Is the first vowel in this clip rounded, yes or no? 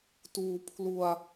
yes